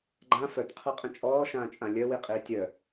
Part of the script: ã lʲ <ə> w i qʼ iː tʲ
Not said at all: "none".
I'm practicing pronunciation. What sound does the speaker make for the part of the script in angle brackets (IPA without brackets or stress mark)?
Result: œ